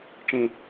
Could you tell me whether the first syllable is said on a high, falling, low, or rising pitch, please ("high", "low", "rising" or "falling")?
low